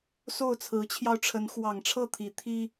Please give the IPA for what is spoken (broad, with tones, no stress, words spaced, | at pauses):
so˥˨ʊ̯t͡sʰɹ̩˨˦t͡ɕʰjɑ˧ʊ̯ʈ͡ʂʰə˨˦n xwɑ˨˩ŋʈ͡ʂʰɤ˥˨ t̪ʰi˨˦ t̪ʰi˦